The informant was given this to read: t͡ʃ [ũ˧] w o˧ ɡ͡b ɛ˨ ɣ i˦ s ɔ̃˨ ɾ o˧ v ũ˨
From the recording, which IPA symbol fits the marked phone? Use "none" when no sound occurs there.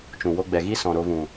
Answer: ũ˨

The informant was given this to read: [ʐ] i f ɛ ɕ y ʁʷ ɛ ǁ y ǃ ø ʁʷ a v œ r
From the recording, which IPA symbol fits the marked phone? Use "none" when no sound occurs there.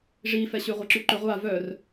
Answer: ʐ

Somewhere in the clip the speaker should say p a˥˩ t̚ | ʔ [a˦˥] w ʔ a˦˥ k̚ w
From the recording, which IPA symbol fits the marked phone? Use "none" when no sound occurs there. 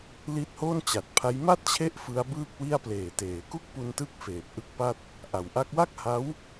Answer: a˩˦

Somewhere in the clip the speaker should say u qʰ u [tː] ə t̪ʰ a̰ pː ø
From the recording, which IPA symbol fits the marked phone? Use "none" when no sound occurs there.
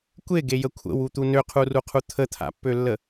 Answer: t̪ʰ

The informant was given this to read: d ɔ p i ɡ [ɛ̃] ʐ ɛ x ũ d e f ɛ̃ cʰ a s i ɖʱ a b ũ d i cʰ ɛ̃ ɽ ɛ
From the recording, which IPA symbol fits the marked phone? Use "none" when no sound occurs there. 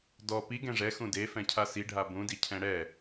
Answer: ɛ̃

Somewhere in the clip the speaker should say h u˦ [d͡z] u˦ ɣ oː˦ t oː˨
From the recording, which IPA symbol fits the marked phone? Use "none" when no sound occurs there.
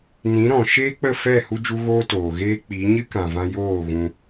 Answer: d͡ʒ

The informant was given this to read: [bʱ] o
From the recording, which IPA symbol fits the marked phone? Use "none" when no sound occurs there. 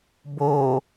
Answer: b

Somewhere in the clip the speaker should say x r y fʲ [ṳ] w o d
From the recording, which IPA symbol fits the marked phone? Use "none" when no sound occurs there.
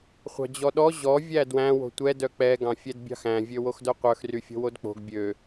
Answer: o̤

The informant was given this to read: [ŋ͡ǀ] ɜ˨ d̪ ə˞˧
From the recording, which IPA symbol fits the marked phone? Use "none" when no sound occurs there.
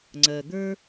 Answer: ŋ͡ǀ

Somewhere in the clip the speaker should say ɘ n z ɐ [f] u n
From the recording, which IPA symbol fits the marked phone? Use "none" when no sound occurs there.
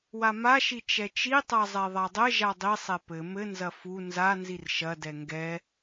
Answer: f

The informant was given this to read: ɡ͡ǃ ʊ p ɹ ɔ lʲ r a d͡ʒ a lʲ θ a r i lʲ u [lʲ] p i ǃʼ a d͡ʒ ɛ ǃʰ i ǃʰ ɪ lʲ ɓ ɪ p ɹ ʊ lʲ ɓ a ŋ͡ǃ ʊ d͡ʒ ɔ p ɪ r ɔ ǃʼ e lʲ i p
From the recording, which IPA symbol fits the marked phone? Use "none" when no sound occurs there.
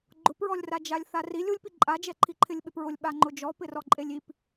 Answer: lʲ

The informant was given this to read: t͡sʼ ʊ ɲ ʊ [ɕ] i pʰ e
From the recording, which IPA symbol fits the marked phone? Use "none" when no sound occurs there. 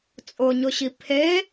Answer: ɕ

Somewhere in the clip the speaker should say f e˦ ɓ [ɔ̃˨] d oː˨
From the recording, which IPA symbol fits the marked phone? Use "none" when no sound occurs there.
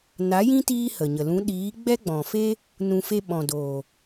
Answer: ɔ̃˨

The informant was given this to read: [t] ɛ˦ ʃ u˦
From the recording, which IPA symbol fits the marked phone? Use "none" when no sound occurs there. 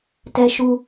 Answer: t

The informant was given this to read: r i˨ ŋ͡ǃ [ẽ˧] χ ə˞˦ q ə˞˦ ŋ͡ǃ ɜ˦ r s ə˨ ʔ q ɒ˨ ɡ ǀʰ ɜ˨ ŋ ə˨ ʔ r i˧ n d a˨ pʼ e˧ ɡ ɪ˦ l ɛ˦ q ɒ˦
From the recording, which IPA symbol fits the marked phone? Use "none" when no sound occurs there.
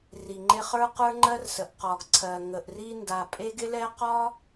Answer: e˧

